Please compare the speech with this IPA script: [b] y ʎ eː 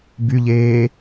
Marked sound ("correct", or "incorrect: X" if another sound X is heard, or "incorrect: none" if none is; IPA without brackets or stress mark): correct